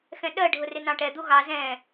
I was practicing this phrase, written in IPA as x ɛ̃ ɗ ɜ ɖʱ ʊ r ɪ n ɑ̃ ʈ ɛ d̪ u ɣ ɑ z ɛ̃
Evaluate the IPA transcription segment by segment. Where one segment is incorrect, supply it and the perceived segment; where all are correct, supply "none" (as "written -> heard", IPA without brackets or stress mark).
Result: none